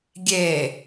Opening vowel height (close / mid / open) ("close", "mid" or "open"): mid